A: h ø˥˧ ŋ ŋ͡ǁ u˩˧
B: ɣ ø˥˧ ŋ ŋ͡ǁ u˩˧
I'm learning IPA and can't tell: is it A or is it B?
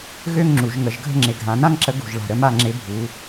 B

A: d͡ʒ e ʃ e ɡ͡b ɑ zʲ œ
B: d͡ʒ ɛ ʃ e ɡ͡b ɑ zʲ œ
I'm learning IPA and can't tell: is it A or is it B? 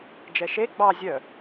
B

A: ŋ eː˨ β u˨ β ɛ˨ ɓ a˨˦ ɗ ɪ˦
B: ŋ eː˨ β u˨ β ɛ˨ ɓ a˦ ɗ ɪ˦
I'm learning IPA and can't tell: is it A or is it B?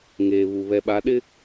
A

